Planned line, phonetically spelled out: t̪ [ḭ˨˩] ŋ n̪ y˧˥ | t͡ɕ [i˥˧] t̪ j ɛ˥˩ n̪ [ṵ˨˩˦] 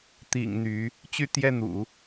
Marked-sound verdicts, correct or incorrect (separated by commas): correct, incorrect, correct